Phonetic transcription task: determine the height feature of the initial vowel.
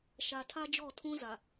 low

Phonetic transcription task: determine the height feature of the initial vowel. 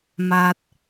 low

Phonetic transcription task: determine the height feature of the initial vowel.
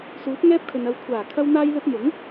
high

